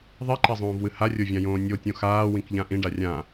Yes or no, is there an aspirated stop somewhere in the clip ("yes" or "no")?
no